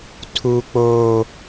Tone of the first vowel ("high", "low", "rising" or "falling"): high